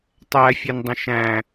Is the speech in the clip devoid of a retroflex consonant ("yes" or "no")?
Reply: yes